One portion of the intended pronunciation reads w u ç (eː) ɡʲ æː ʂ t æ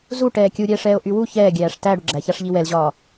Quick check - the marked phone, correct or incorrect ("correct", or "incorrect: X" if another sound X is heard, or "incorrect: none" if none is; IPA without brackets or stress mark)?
incorrect: ɛː